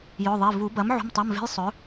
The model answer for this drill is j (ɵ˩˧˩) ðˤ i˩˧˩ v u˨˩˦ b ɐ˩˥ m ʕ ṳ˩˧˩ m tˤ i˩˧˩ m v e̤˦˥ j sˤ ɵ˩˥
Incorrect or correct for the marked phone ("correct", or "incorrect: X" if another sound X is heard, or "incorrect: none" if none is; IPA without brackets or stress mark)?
correct